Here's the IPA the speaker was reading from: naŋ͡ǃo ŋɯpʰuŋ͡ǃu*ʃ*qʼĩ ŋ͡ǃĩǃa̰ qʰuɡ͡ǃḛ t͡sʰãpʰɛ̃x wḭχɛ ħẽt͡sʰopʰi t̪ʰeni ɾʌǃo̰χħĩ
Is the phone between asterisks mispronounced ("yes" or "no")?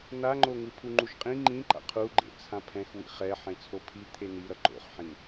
no